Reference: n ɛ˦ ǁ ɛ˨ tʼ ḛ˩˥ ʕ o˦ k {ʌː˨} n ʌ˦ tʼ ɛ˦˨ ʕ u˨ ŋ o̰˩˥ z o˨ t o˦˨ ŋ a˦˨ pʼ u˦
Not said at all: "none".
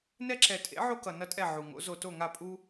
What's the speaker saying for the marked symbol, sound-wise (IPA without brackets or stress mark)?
ʌ˨